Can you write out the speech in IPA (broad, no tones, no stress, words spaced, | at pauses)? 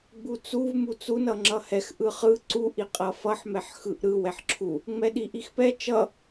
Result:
ɡ͡but͡suv mut͡sun ʌŋ͡ǁʌhɛx ʔɯχɯ ǀuʔ iqʼʌfʌħ mɛħxɯʔɾɯ wɛħǁʰu | ŋ͡mɛɗiʔixpɛ t͡ʃʌ